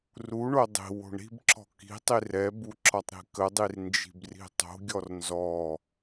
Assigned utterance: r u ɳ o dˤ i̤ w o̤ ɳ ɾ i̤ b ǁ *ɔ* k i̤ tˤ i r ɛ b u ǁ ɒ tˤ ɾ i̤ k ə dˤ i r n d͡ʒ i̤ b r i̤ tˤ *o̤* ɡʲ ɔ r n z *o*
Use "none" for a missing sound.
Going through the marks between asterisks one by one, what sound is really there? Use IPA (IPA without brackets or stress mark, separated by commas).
ɔ̤, o̤, ɔ